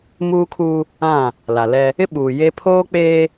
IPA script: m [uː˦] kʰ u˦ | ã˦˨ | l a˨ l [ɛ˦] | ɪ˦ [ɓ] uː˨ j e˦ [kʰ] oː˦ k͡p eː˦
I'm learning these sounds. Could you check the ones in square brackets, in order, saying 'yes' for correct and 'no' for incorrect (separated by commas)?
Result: yes, yes, yes, no